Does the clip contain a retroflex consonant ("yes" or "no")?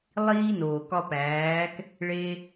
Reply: yes